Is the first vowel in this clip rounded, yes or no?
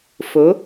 yes